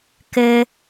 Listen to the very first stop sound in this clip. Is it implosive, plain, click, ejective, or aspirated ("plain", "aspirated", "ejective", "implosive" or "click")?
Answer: plain